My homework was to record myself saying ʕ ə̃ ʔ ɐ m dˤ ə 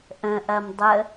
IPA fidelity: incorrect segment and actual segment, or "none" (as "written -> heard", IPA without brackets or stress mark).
ʕ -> ʔ